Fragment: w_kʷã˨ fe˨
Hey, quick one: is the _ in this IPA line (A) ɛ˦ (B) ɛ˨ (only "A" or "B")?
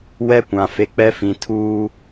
A